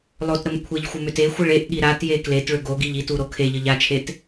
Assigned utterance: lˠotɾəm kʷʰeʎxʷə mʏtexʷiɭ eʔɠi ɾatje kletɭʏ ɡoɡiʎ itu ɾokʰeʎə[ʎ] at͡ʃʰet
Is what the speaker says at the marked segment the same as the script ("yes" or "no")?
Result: yes